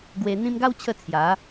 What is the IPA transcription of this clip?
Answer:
ɡ w e˧ n̪ ĩ˧ m ɡ a˦ w t͡ɕʰ ə˧ t͡sʰ j a˨˦

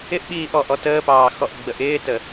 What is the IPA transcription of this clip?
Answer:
ɪ ʔ ɓ iː ʔ ɔ ʔ ɔ t əː p ɑː x ɔ ʔ ɡ͡b ə ʔ ɪː t ə

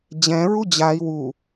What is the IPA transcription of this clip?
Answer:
d͡ʑ ɛ̃ ɹ u d͡ʑ a i̯ w u

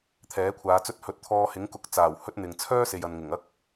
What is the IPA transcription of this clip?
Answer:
t̪ʰ ɛː˨˥ kʷʰ aː˨˧ t͡s ɵ˥ t̚ h ɵ˨˥ t̚ t̪ʰ ɔː˧ h ɪ˨˥ ŋ k ʊ˨ k̚ t͡s aː˨˩ w h ɵ˥ t̚ n̪ ɪ˨ ŋ t͡sʰ œː˥ s e˨ j ɐ˨ n ŋ ɪ˨˩ ŋ ɐ˥ k̚

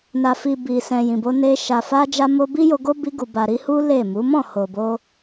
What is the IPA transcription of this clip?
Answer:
n a˨ f i˨ b i˨ s ɛ̃˨ j ĩ˨ b o˧ n e˧ ʃ a˨ f a˧ d͡ʒ a˧ m o˧ b i˦ j o˧ ɡ o˦ b i˧ ɡ u˨ b a˨ ɾ i˧ h u˦ l e˦˨ m u˨˦ m ɔ̃˦˨ h o˨ b o˧

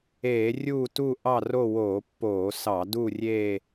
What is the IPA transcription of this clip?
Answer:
eː˧˩˧ rʲ uː˥˧ t u˥˧ ʔ ɑ˥˧ r o˥˧ w oː˧˩˧ pː oː˧˩˧ s ɑ˧˩˧ d u˥˧ rʲ eː˥˧

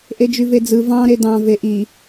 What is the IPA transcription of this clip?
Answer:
ʔ e d͡ʒ y v e d͡z ɯ v ɑ̃ ɾ e d ɑ̃ v e ʔ i

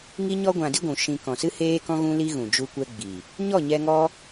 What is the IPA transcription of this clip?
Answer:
ŋ i˦ ɲ ɔ˦ ɡʷ ã˧ d i˦ ɡʷ ũ˨ ʃ ĩ˧ k ɔ̃˨ s ɨ˦ h eː˦ k ɔ̃˦ ɣ ũ˦ l i˦ ɣ ũ˨ d͡ʒ u˦ kʷ ɛ˦ ɡ͡b i˨ | ɲ ɔ˦˨ ɲ ɛ˧ ŋ ɔ˦

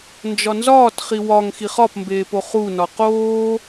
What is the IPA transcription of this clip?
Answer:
n d͡ʒ ɒ n z ɒː t χ i w ɒ ŋ x i χ ɒ p m b eː p o χ u n ɒ q oː

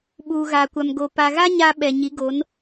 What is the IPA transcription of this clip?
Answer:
ɓ uː˨ ɣ aː˨ kʷ a˨ m ɡ o˨ p a˨ ɣ a˦ ɲ a˦ ɓ ɛ˨ ɲ i˨˦ ɡ o˨˦ n

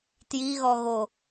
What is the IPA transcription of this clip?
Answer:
t j i ɣ ɔ ɣ o

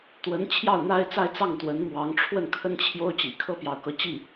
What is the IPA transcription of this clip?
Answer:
t̪ w ə˧˥ n t͡ɕʰ j ɑ˥˩ ʊ̯ n̪ a˥ ɪ̯ t͡s a˥˧ ɪ̯ t͡s ɑ˥˩ ŋ t̪ w ə˧˥ n m w ɑ˧˥ ŋ ʈ͡ʂʰ w ə˥˩ n kʰ ə˥ n t͡ɕʰ j o˥ ʊ̯ t͡ɕ ḭ˨˩ kʰ ɤ˥ p j ɑ˧˥ ʊ̯ k ɤ˧˥ t͡ɕ i˥˩

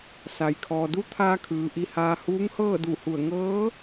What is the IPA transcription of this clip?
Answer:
s a˩ j kʰ ɔː˩ d u˧˥ t̪ʰ aː˧ kʰ ɯː˩ ʔ i˧ h aː˧ h uː˧˥ ŋ h ɤː˥˨ d u˧˩ h u˧˩ ə̯ ŋ ɤː˧˥

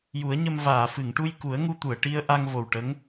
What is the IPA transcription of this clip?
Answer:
j u˨˩˦ ə̯ ɲ ə˧ m v aː˨˩˨ f ɨ˨˩˨ ŋ ʈ u˧ j k u˨˩˦ ə̯ ŋ u˧ t̪ u˨˩˨ ə̯ ʈ i˧ ə̯ ʔ a˧ ŋ v o˨˩ w ʈ ə˧˥ ŋ

